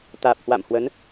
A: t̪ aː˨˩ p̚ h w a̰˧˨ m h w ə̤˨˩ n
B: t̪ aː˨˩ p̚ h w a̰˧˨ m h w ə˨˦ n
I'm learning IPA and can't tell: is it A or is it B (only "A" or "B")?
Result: B